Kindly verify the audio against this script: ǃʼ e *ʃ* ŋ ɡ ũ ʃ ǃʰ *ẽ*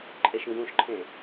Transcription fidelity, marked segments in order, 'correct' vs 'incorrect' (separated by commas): correct, correct